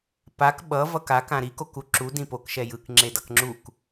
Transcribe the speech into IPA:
p a k ɓ ʌ v ʌ k a k ã ɾ i k o k u ǁ u d ĩ p o k ʃ ɛ j ɯ k ŋ͡ǁ e d ʌ k ŋ͡ǁ u k

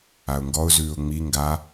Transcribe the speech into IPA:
a ʊ̯ ŋ ɡ ɔ ʊ̯ z ʉː ʊ̯ ŋ͡m i ŋ ɡ a

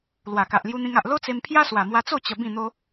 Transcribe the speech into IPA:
l w a˨˩ k a˨ ʔ l j u˧ n̪ ĩ˧ ŋ a˨ ʔ l o˦ t͡s e˧ m pʰ j a˦ s w a˨˩ m w a˧ t͡s o˥˧ t͡ɕ ə˧ b ĩ˥˧ n̪ o˦

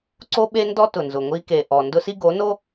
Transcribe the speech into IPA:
ǀ o˦ ɓ e˦ n d ɔ˦ t ʊ˨ n z ʊ˨ ŋʷ i˦ k e˨ ʔ ɔ˨ n d ʊ˦ s i˦ ɡ o˨˦ n o˦

